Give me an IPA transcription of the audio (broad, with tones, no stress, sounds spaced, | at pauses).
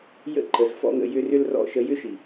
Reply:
j ə̰˦ ǃ ə˨ z f ɔ̰˦ ŋ ə̰˧ j ʏ˧ r ʏ˦ l r ɔ̰˦˨ ʃ ə˧ j ʏ˦ ʃ i˨